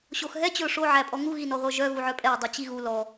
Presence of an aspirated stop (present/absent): absent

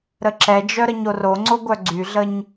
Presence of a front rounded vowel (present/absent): present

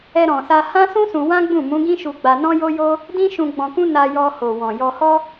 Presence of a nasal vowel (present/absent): present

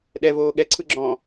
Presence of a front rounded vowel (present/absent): absent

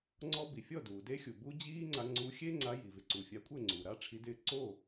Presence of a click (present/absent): present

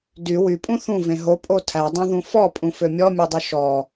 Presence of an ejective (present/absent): present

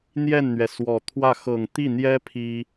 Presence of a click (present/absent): absent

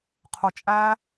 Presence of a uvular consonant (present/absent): present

